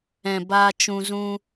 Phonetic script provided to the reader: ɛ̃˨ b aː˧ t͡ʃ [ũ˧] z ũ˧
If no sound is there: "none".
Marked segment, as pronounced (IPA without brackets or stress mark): ũ˧